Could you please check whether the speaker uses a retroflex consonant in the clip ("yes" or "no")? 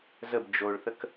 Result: yes